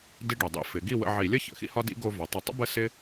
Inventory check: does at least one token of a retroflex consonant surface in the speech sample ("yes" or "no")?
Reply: yes